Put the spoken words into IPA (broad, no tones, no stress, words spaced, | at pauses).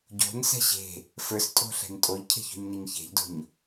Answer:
ɟo̤nsɛ̤ ɕe̤ | fə˞stʼo̤ɬɛ̤n tʼoʎcʰe̤ço̤ɲneɲ çe̤ʎdo̤ɲ